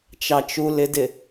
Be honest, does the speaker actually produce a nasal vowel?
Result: no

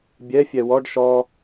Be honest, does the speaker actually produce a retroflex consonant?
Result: yes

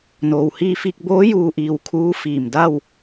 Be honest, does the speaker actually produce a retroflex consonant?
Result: no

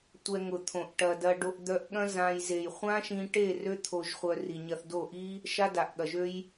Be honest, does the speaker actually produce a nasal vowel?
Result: yes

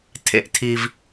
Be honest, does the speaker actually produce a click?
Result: no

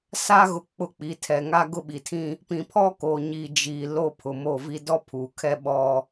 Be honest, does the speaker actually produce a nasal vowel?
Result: yes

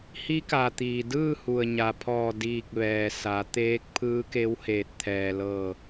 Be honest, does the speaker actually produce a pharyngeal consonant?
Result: no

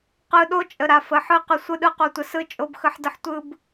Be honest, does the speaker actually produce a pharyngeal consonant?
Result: yes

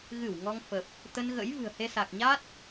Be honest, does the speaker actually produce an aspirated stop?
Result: no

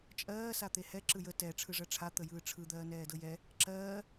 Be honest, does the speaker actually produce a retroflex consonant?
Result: yes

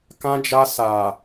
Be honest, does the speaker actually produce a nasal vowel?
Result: yes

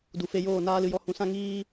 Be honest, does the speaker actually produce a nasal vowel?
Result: yes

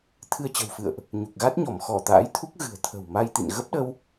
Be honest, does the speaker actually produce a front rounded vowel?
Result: no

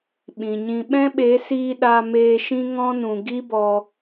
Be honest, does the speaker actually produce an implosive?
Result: yes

